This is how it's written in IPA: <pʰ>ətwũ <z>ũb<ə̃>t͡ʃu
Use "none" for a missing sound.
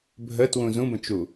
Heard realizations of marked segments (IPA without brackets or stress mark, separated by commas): bʱ, z, ə̃